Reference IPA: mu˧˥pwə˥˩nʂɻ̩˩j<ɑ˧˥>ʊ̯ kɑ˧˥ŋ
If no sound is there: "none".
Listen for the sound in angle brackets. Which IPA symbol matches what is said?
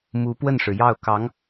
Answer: ɑ˥˩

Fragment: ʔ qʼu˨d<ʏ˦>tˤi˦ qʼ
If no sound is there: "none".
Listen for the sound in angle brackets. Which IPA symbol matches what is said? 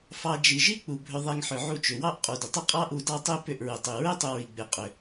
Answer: ʏ˨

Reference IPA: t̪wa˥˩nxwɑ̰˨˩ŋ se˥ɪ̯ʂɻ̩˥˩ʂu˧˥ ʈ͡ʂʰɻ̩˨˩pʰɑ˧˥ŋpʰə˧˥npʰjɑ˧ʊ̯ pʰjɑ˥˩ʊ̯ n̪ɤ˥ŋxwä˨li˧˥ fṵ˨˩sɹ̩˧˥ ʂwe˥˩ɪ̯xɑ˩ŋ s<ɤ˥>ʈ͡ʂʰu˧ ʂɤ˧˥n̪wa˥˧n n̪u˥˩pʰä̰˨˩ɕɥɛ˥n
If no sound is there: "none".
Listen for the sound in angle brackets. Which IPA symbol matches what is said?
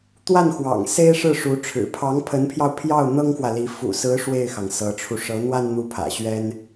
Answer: ɤ˧˥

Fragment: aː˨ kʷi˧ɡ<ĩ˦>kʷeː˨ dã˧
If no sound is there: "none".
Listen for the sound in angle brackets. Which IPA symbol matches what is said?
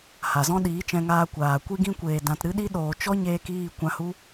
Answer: ĩ˧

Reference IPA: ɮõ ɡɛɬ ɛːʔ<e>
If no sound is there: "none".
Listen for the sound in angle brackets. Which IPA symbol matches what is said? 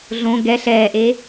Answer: e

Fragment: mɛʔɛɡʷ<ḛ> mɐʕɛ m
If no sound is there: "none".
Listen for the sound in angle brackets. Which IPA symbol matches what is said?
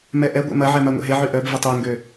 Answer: ḛ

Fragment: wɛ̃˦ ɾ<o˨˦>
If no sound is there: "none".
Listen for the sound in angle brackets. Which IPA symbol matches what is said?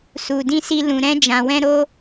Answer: o˦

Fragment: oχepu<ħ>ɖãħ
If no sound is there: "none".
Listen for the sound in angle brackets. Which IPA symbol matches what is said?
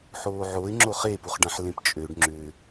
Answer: χ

